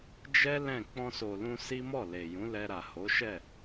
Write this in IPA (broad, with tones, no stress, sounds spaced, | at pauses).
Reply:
d͡ʒ ɛ˦ l ɛ̃˦˨ k͡p ɔ̃˧ s o˨ l ũ˧ s i˦ m ɔ˦˨ l e˨ j ũ˨˦ l ɛ˧ ɾ a˨ h o˨˦ ʃ ɛ˦˨